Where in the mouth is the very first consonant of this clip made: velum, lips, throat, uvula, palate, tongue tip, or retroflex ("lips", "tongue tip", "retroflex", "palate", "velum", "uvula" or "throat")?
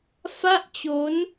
lips